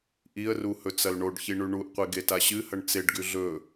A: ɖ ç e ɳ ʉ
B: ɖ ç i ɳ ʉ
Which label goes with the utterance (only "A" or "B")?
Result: B